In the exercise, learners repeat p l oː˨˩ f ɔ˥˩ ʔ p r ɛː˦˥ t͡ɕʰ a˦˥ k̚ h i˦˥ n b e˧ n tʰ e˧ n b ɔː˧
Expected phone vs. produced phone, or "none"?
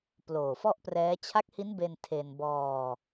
none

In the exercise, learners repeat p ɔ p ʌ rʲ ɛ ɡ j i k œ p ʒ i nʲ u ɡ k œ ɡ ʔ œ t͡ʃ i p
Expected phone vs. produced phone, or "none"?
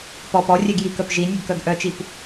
ʌ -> ɔ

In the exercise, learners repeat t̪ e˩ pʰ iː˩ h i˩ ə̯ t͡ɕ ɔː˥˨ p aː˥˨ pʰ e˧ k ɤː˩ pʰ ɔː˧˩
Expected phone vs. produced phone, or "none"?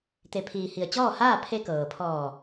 p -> h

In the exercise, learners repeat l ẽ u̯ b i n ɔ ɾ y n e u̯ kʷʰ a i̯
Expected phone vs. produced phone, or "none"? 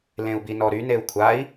none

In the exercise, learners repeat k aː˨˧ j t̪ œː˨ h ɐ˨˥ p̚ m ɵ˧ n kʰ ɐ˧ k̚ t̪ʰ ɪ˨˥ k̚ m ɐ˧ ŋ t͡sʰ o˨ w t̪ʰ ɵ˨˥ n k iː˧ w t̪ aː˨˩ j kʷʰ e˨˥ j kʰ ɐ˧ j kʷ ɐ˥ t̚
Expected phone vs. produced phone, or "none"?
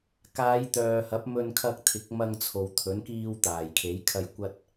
kʷʰ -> kʰ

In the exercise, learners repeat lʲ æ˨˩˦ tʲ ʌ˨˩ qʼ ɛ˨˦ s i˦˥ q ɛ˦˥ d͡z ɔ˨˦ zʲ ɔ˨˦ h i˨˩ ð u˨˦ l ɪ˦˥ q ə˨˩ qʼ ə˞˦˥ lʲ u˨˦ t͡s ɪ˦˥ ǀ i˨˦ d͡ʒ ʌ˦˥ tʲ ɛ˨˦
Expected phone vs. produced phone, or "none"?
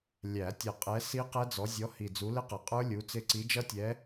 ð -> d͡z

